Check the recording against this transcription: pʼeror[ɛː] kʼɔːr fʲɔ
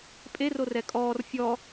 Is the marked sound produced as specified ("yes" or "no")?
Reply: no